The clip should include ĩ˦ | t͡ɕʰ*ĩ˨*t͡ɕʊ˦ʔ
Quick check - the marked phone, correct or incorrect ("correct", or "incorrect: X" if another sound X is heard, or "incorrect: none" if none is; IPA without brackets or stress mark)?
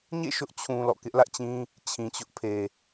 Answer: correct